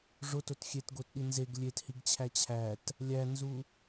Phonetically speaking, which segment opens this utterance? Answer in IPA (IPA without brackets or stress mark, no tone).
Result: ʐ